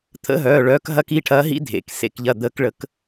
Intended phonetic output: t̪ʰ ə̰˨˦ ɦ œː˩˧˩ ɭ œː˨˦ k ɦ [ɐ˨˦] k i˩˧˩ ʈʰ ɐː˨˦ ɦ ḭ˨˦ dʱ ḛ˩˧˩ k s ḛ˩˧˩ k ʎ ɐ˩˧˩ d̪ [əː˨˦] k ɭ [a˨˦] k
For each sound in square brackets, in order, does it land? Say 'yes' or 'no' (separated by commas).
yes, yes, no